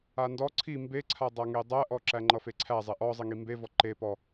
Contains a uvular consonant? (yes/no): no